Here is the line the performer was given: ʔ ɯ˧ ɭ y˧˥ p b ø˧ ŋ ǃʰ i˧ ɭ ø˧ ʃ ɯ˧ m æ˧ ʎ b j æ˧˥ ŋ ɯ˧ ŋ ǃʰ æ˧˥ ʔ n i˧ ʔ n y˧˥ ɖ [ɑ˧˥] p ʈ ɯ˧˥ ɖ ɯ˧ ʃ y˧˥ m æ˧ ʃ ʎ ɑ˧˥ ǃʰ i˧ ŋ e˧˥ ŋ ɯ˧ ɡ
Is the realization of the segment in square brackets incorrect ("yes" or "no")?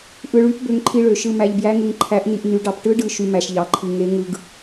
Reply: no